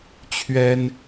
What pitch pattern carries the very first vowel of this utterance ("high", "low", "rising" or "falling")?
high